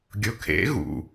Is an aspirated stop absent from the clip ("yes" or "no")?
no